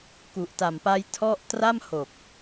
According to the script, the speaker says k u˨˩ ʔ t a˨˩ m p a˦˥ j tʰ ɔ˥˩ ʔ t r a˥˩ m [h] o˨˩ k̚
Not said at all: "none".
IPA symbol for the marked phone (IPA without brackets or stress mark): h